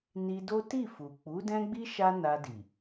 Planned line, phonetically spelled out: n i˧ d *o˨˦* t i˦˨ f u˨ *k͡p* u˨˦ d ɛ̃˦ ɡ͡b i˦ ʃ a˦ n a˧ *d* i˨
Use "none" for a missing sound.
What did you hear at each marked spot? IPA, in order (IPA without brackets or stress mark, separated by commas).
o˦, k͡p, d